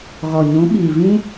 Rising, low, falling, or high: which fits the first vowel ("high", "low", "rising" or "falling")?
low